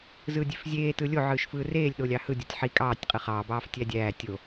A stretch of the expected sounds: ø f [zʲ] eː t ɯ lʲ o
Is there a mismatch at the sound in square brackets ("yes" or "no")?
no